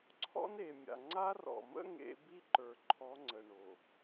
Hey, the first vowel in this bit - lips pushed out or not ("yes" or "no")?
yes